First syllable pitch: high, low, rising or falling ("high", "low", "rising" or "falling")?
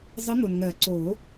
rising